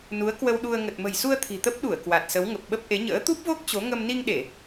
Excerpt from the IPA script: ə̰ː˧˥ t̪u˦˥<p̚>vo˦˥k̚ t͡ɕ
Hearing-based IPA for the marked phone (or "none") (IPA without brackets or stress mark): p̚